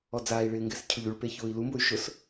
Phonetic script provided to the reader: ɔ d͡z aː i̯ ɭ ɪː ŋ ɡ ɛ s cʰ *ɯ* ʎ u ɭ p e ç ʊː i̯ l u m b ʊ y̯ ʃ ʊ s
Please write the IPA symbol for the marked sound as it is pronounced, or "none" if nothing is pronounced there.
ʊ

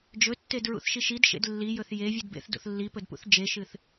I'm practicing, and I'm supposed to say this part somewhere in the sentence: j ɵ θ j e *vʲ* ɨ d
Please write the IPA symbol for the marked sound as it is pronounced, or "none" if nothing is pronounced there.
vʲ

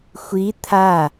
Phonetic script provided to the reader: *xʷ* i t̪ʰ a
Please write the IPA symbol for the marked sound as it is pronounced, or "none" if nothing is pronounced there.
xʷ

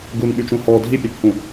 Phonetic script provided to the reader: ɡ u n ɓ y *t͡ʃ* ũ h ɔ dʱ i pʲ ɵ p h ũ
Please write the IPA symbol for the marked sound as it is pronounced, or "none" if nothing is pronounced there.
t͡ʃ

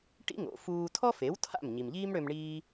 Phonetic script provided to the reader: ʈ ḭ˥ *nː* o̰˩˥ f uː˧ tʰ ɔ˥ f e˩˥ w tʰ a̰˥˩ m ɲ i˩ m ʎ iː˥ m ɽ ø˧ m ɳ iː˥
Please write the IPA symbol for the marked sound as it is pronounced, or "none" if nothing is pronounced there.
ŋ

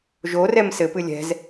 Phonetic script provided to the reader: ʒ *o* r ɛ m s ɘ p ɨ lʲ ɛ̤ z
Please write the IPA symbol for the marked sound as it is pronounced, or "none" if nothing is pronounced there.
o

